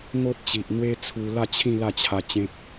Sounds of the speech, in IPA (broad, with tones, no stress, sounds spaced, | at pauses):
ŋ o˦ t̚ t͡ɕ i˨ ʔ n̪ w e˦ t͡sʰ u˧ l a˥˧ t͡ɕʰ ĩ˥˧ l a˥˧ t͡ɕʰ a˧ t͡ɕ ẽ˦ p̚